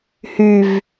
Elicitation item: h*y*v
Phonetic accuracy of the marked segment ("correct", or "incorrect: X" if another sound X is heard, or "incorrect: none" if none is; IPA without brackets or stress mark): correct